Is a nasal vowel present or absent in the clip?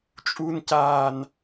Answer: absent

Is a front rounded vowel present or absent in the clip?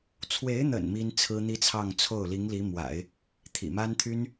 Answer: present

